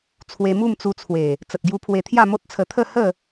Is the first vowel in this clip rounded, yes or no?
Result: no